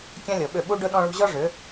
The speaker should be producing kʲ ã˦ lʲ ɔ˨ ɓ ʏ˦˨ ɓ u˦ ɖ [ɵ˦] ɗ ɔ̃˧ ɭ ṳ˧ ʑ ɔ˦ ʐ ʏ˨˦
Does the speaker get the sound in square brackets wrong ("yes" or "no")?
no